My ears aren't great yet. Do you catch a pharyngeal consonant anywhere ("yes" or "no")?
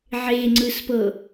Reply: yes